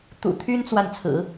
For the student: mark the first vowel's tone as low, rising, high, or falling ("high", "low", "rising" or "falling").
low